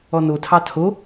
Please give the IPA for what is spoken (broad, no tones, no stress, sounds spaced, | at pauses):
ɔ n o tʰ ɑ tʰ o